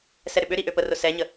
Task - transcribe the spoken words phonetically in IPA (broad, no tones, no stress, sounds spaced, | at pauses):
s ɛ ɾ ʏ ɓ ʏ ɾ i ʔ ø p ə r ʊ s ɛ ɲ ə